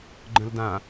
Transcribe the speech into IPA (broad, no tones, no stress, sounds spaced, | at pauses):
ɡ͡ǃ ə̃ l d ã